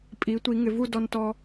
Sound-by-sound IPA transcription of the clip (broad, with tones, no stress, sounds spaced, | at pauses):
pʼ i˩˧ tʷ i˩˧ ŋ ɪ˩˧ v u˥˧ d ɔ˧ n t ɔ˧